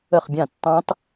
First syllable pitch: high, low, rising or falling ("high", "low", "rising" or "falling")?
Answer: falling